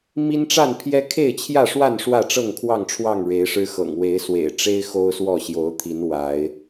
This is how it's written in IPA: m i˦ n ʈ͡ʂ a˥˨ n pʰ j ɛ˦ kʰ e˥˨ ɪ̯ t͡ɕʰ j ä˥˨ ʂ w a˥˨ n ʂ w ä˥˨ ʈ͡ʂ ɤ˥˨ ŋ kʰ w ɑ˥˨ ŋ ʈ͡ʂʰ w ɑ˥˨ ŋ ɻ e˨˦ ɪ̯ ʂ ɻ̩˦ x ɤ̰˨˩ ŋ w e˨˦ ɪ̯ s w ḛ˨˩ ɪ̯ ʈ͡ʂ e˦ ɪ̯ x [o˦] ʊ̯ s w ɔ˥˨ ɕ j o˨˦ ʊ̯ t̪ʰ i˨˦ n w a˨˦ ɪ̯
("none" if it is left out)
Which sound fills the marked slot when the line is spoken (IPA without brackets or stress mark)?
o˦